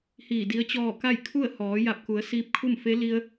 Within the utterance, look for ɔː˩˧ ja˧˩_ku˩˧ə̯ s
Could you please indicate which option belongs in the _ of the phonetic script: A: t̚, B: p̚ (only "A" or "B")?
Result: B